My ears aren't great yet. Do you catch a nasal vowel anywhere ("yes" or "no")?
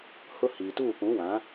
yes